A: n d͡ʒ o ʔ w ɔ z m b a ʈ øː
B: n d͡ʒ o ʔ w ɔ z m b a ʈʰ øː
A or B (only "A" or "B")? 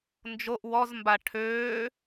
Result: B